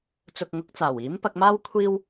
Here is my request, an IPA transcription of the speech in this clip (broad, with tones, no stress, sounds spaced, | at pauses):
t͡s ʊ˨ k̚ ŋ ʊ˨˥ k̚ t͡s aː˨˩ w iː˨˥ m p ɐ˧ k̚ m aː˥ w kʷʰ iː˥ w